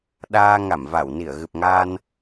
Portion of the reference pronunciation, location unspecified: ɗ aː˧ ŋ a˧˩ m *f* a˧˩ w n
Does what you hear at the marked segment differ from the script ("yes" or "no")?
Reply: yes